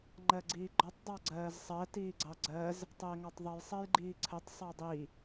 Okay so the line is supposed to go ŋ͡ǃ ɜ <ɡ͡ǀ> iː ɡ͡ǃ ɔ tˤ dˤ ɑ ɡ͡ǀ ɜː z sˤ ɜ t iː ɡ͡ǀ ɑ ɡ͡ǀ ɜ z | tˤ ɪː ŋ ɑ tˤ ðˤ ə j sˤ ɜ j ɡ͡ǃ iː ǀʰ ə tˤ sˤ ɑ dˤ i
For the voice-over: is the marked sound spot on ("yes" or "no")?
yes